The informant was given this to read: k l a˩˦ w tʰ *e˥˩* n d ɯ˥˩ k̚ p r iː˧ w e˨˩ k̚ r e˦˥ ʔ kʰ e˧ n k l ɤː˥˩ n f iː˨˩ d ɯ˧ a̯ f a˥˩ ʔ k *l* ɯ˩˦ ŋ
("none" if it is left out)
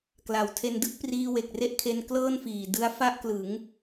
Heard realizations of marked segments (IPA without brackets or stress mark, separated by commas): e˧, l